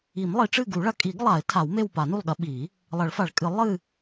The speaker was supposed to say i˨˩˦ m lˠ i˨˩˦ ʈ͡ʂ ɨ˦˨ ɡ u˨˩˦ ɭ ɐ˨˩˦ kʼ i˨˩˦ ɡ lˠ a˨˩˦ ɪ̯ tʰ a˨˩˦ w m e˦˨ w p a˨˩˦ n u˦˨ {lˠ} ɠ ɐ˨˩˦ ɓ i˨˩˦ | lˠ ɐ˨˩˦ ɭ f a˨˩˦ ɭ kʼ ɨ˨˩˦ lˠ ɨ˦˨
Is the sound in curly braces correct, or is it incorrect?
correct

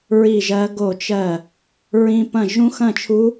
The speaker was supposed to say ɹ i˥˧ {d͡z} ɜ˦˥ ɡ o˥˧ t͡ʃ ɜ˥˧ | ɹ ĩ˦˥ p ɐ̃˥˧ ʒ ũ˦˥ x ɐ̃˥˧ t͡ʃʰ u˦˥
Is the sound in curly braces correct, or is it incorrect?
incorrect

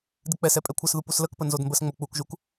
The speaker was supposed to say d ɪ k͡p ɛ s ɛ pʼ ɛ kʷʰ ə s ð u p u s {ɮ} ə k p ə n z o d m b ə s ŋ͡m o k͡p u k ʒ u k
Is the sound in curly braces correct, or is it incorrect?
incorrect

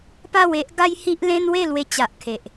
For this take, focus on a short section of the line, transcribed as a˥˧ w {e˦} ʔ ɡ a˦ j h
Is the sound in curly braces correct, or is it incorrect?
correct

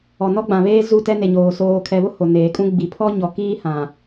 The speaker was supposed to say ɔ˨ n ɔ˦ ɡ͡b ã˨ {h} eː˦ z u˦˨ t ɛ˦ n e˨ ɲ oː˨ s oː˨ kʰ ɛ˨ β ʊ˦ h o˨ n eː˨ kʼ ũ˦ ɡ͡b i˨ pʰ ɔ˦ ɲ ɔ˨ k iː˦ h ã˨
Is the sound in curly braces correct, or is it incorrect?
incorrect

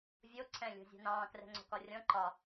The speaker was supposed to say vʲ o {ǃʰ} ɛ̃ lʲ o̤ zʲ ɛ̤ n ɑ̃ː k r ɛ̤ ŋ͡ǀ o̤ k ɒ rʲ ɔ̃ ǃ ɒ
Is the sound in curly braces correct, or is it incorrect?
incorrect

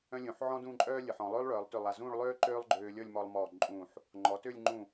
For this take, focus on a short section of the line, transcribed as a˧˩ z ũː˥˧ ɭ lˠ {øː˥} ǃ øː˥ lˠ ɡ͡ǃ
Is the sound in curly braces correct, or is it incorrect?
correct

